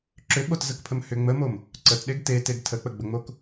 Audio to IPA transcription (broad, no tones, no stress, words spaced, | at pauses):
ǁʏɓotzəkpʰəm hʏ ŋ͡məmom | ǀətɗeɡ teteɡ tʰək͡pəɡ͡bəŋ͡mok